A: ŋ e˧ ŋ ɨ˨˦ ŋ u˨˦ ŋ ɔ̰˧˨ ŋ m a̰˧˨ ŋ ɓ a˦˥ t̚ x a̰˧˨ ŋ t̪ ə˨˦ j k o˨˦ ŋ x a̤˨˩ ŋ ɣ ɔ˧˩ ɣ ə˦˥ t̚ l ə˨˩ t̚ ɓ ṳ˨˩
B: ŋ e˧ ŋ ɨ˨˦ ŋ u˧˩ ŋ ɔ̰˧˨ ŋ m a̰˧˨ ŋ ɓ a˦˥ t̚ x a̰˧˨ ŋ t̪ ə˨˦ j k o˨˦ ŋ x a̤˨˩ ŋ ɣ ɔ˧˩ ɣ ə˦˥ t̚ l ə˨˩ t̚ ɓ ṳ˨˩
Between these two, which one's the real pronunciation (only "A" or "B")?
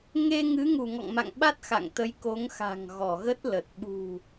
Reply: B